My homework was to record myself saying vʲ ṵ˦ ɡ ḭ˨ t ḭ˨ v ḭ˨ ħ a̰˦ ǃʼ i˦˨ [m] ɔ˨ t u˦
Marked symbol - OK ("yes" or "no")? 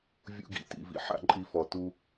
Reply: no